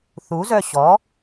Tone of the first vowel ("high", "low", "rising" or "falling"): rising